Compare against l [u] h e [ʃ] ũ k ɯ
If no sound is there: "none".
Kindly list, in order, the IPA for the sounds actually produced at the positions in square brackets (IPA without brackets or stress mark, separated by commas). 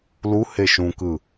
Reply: u, ʃ